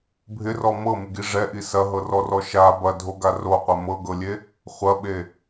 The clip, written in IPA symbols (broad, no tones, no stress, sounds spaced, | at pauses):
bʱ ɪ r ɔ m ɤ m ɪ ɡ i ʐ ɛ ʔ i s ɐ ɦ ɤ r ɔ r ɔ ʃ a b ɐ dʱ o ɡ a r o qʷ ɛ m ɤ ɡ ɤ lʲ e | χʷ ɐ ɓ e